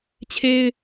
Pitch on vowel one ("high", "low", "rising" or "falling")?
high